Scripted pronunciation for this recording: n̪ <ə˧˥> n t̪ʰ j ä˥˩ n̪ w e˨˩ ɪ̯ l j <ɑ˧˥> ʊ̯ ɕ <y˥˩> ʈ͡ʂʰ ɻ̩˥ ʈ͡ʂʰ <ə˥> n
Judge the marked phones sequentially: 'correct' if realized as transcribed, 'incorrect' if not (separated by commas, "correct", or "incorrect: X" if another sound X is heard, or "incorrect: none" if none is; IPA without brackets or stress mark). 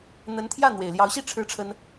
correct, correct, incorrect: i˥˩, correct